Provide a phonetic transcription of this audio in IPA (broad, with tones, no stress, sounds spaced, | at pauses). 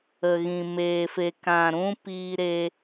ə˨ ɣ ĩ˨ m eː˨ f e˨ k ã˨ ɾ ũ˧ p iː˧ ɾ e˧